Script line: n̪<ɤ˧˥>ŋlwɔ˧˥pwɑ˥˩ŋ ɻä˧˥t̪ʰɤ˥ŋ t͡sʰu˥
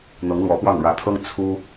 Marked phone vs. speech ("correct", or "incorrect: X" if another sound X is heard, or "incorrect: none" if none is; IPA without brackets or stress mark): correct